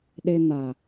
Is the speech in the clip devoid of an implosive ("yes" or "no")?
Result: no